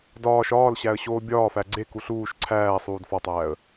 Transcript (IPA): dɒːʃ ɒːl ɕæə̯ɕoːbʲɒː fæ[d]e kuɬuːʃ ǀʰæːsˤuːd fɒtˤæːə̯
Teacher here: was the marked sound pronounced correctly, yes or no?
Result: no